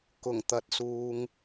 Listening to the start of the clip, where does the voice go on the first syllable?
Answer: low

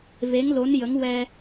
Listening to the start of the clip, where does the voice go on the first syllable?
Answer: rising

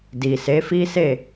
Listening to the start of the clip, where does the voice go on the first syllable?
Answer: low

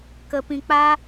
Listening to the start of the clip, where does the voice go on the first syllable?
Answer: high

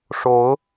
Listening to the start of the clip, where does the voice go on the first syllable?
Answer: rising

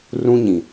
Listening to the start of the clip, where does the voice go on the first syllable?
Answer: high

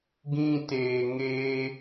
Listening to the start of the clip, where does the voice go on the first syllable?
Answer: high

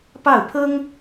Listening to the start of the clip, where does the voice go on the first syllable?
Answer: falling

